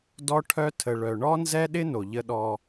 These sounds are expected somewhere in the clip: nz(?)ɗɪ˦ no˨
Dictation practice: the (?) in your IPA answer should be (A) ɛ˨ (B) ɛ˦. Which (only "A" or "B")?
B